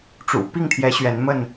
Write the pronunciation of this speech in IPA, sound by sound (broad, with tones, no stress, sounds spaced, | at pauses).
ʈ͡ʂ ṵ˨˩ p i˥˨ ŋ t̪ʰ j ɛ˨˦ ɕ ɥ ɛ˨˦ n m ə˥˨ n